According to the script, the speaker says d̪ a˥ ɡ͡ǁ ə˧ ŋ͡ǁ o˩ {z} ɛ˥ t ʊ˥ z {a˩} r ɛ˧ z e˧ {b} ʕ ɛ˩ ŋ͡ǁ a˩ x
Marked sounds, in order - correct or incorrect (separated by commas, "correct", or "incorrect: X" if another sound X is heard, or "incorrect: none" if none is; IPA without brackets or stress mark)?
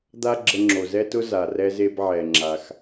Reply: correct, correct, correct